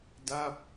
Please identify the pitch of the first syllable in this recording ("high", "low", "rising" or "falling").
falling